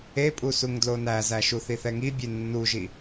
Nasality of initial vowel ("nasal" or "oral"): oral